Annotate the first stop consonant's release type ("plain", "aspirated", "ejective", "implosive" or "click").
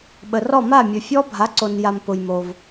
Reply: implosive